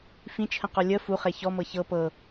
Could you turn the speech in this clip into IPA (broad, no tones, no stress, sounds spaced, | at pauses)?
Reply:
f ĩ t͡ʃʰ ə̃ q ɔ lʲ ə f u χ e ç ɔ m ɤ ç ɤ p ɤ